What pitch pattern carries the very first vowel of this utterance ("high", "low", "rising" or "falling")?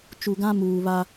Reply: low